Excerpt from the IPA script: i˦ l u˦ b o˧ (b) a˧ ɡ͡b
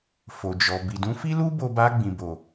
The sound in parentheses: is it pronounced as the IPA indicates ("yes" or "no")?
yes